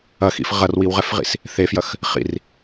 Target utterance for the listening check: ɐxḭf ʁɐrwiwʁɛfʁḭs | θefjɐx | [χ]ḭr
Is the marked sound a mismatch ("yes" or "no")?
no